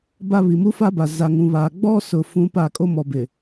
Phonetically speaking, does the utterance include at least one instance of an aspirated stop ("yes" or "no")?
no